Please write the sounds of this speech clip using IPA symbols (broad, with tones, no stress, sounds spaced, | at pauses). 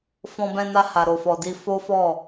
f ɔ̃˧ b ɛ̃˧ n a˧ h a˨ ɾ o˨ f ɔ˨ d i˧ f o˦ f ɔ˦˨